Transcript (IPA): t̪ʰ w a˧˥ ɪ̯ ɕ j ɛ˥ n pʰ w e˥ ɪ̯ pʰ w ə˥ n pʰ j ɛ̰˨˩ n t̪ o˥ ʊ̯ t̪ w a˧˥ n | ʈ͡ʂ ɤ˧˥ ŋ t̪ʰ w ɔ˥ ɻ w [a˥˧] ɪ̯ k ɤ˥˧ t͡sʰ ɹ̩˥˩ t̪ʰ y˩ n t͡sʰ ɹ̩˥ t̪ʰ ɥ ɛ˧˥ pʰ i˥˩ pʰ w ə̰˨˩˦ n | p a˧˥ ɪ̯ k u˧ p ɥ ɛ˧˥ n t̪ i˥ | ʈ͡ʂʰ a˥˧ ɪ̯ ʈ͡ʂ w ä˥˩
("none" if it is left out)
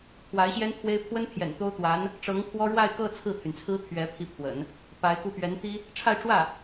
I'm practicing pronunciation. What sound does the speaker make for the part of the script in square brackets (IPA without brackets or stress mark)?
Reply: a˥˧